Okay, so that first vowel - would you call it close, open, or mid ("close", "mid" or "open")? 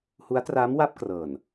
close